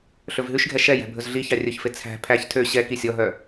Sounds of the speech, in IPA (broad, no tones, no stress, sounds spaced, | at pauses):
ɬ ɵ v ɦ ʉ ʃ ɡʱ ɛ ʃ ɛ j æ̤ bʱ ɵ z ɮ i ç ɑ rʲ ɵ ç f e t͡sʰ æ̤ pʰ æ ç tʰ ø ɕ ɛ k i sʲ ɔ ɦ œ